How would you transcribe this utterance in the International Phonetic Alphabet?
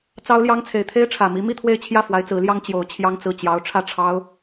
t͡s ɑ˥ ʊ̯ l j ɑ˥ ŋ t͡sʰ e˨˩ ɪ̯ t̪ʰ e˥ ɪ̯ ʈ͡ʂʰ ä˨˩ m i˧˥ m i˥˧ t̪ʰ w e˥˧ ɪ̯ t͡ɕʰ j ä˥˩ f w a˧˥ ɪ̯ t͡s ɹ̩˧˥ l j ɑ˥ ŋ t͡ɕ j o˧˥ ʊ̯ t͡ɕʰ j ɑ˥ ŋ t͡s ɹ̩˥˩ t͡ɕ j ɑ˥ ʊ̯ ʈ͡ʂʰ ä˥˩ ʈ͡ʂʰ ɑ˥ ʊ̯

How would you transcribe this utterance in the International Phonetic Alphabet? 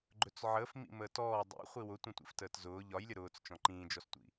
ɡ͡ǃ ɵ t͡s ʕ əː f m ḭ m əː t ɔː dˤ ḭ χʷ i w ʊ tʷ ə̃ tʷ ḭ f t əː t z ʊː ʎ ɒ j lʲ ə ɾ ʊː t͡s t͡ʃ ɔ̃ ǃ ĩː d͡ʒ ɔ s tʷ ḭ

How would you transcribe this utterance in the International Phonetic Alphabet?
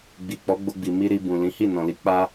ɡ͡b i˨ k͡p ɔ˨˦ ɡ͡b o˧ ɡ͡b i˨ m i˧ ɾ i˧ b ũ˨ l ĩ˨˦ h i˦˨ n ɔ̃˨ l i˨˦ k͡p a˦

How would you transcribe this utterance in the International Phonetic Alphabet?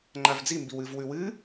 ŋ͡ǃ a v d͡z i m b i w ɨ v w ʉ w ɨ

